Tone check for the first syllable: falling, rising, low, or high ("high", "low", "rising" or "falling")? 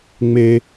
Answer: high